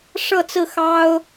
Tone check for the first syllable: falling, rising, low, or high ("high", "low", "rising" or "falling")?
falling